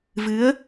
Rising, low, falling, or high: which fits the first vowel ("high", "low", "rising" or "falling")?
rising